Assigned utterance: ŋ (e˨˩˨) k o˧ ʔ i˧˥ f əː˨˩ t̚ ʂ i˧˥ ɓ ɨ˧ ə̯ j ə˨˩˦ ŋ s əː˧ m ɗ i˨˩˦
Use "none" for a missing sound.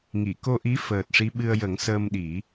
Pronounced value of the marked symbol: i˨˩˨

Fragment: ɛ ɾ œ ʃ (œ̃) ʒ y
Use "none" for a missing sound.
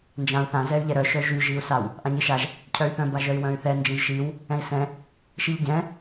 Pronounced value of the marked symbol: œ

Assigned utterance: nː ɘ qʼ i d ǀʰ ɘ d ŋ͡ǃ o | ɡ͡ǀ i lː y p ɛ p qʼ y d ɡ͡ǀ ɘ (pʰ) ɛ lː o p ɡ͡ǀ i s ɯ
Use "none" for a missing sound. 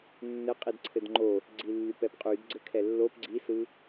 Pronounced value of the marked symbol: kʰ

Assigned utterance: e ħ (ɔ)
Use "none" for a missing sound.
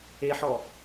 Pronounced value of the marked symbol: ɔ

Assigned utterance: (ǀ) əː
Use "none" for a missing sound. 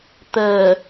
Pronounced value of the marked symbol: t̪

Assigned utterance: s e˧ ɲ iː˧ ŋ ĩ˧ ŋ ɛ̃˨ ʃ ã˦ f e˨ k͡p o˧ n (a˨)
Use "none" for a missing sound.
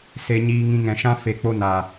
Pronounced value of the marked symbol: a˨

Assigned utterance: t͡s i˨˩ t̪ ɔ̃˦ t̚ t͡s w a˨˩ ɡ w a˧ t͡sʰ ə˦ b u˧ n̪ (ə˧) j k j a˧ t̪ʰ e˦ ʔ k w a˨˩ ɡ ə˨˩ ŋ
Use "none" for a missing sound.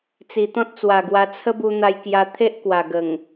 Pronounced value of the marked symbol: a˧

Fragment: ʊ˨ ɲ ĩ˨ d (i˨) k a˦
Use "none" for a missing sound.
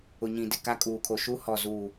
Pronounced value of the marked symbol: ɪ˨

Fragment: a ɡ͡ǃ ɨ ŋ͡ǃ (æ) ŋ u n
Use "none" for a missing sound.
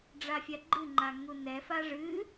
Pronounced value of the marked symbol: a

